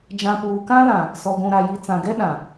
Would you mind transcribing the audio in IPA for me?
d͡ʒ ã˨ p uː˨ k ã˦ l ã˨ | s ɔ˨ ɡʷ ũ˨ ɾ a˨ j i˨ t͡s ã˨ ɡ ɛ˦ ɗ ã˨

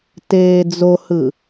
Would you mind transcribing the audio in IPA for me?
t eː d͡z o h ɯ

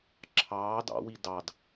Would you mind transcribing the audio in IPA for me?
ǁʰ ɑː d ɑ̰ w i d ɑ d

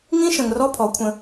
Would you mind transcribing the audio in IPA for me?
ŋ ĩ˦ ʃ ə̃˨ ŋ r ɔ˦ pʰ ɔ˨˦ kʷʰ ə̃˧

